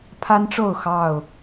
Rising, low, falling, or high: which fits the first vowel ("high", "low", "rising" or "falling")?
high